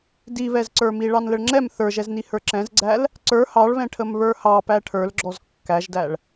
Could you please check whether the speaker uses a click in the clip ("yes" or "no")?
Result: yes